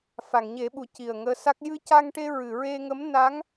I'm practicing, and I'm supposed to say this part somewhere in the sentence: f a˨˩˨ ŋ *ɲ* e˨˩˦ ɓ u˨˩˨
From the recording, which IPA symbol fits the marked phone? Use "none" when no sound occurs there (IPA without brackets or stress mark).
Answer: ɲ